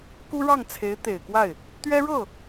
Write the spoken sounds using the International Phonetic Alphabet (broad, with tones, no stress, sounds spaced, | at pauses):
k u˥ ɻ ɑ˥˩ ŋ t͡sʰ e˧˥ ɪ̯ t̪ e˨˩ ɪ̯ k w a˥˩ ɪ̯ | t̪ ɥ ɛ˥ ɻ ɤ˥˩